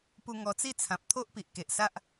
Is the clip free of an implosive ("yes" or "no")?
yes